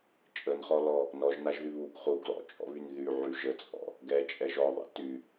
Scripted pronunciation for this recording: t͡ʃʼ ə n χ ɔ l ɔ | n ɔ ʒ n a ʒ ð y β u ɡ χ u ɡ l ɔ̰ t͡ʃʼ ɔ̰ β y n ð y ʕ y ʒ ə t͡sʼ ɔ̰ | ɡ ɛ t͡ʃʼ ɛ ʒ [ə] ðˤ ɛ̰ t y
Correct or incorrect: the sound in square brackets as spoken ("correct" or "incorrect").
incorrect